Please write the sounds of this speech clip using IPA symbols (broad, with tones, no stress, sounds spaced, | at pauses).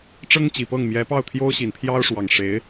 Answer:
ʈ͡ʂ ɤ˥ ŋ t͡ɕ i˨˩ p ɤ˥˩ ŋ m j ɛ˧˥ p ɑ˥˩ ʊ̯ t̪ʰ j o˥ ʊ̯ ɕ i˨˩ n pʰ j ɑ˥ ʊ̯ ʂ w ɑ˨˩ ŋ ʂ e˧˥ ɪ̯